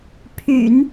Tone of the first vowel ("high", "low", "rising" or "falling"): low